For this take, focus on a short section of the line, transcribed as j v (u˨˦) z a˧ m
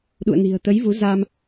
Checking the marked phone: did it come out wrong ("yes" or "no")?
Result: no